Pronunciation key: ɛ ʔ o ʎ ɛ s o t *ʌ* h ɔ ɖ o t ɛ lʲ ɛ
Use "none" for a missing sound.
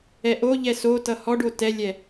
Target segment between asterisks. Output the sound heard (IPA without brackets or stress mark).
ʌ